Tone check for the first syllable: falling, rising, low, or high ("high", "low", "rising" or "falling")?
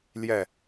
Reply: falling